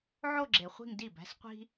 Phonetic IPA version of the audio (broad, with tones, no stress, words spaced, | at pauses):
ʕo˥˧ ɡ͡ǁe˨χʷi̤˥˧ŋ di˥˩bæ̤˥sqʷi̤˥